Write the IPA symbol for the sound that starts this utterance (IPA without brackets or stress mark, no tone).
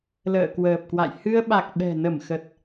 l